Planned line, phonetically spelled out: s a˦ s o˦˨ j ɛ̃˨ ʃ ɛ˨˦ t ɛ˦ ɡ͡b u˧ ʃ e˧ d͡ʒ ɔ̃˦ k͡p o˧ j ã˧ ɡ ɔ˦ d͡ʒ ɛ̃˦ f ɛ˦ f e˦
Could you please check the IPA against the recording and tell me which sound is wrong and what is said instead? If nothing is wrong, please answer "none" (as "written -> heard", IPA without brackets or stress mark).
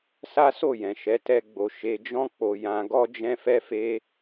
u˧ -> o˧